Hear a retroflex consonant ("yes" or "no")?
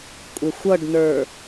yes